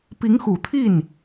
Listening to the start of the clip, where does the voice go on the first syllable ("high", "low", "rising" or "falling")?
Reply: rising